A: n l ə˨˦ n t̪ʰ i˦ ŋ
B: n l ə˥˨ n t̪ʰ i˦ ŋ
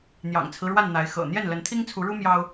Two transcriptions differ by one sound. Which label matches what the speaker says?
A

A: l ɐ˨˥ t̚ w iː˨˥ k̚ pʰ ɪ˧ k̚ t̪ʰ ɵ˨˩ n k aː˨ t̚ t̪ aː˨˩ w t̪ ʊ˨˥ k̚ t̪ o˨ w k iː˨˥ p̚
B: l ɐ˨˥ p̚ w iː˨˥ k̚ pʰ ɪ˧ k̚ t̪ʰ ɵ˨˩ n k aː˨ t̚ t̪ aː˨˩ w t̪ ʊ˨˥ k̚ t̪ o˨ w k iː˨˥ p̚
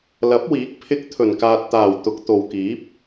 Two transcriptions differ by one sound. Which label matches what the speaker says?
B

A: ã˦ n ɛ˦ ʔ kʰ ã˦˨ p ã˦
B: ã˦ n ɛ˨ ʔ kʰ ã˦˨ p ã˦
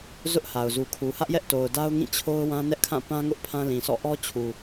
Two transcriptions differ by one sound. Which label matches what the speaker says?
A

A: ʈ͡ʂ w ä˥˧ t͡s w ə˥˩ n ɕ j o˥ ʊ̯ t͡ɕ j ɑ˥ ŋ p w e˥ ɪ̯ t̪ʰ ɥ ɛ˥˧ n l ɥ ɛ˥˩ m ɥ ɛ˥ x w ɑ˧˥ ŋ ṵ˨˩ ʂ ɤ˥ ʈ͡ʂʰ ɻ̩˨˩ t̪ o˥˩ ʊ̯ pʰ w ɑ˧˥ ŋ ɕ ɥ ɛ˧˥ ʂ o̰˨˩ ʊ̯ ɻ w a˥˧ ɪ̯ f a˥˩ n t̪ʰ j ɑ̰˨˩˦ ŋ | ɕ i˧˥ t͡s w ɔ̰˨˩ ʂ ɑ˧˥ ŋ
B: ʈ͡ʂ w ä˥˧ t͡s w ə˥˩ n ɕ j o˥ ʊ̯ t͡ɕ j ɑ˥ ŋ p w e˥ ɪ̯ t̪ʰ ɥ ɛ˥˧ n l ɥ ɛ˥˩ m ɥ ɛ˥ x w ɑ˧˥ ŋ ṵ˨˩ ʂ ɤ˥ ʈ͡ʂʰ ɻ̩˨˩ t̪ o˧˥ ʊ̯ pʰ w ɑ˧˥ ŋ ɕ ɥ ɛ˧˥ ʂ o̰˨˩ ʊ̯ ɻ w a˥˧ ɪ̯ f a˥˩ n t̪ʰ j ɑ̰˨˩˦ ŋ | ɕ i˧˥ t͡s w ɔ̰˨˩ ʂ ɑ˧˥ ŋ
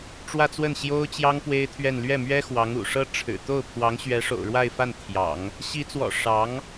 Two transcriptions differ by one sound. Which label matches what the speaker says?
A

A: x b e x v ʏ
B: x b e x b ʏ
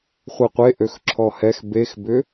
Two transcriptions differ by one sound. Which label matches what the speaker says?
B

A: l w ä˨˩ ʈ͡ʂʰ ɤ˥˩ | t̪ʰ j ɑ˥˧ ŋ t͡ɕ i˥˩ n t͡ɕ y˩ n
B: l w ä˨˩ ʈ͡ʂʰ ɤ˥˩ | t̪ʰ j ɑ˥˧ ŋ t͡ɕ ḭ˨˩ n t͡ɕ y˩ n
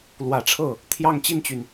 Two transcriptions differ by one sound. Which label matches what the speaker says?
A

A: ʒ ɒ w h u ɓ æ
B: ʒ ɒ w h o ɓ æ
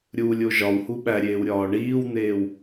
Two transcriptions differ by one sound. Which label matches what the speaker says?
A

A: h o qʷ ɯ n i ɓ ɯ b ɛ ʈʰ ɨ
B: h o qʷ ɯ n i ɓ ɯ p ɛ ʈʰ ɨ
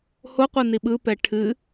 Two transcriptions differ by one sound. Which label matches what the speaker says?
B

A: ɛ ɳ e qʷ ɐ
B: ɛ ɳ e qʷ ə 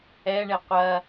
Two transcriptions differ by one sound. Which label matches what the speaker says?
A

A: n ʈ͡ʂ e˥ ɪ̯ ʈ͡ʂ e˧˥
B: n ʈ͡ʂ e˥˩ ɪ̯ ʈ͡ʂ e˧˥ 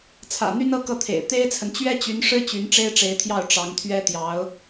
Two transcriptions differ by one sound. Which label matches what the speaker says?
A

